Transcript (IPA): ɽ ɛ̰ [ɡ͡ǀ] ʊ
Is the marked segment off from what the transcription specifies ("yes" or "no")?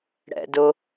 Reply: yes